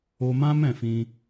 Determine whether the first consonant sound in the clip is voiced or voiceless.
voiced